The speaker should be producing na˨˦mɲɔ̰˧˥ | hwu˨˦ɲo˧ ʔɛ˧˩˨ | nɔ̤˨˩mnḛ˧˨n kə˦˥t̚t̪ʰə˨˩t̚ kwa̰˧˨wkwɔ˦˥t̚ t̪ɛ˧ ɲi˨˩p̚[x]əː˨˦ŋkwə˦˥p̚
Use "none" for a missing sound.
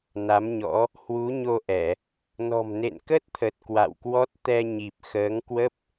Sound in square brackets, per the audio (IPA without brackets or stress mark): x